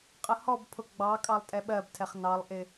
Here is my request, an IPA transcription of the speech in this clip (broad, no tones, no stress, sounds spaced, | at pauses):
qʼ ə h ɔ b pʰ ʊ ɡ͡b ɑ kʼ ɑ lˠ tʼ ɛ ɓ ɜ b tʰ ɛ χ n ɑ lˠ ʔ ɪ